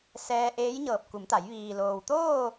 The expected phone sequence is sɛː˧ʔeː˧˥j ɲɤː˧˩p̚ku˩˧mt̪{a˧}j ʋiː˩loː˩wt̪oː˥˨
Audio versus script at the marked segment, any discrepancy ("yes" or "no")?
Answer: yes